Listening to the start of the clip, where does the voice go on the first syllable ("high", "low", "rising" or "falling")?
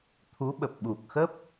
rising